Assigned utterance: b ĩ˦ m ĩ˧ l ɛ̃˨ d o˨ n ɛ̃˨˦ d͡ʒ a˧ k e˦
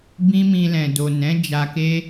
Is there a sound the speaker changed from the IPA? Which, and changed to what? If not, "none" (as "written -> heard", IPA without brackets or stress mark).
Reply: none